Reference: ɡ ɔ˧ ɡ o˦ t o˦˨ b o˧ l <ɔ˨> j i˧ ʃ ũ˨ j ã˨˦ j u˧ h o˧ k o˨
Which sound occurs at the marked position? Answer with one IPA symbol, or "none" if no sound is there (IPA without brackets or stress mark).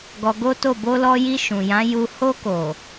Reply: ɔ˧